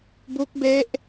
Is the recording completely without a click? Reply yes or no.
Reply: yes